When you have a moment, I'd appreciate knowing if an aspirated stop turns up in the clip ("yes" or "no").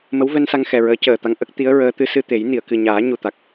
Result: no